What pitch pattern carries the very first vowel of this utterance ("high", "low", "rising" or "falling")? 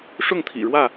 falling